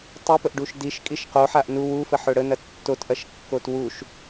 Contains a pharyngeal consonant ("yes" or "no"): yes